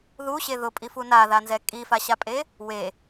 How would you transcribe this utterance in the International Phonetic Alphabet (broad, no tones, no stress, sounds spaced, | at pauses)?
ð u ɕ e ð ʊ pʼ i f u n a ð a n z ɛ kʼ i f a ɕ a pʼ e | w e